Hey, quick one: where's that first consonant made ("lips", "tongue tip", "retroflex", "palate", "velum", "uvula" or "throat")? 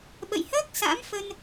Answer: lips